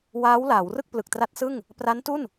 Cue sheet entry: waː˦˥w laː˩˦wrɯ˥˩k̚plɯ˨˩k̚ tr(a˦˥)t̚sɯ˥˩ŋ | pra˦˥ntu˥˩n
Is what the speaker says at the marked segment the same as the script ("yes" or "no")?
yes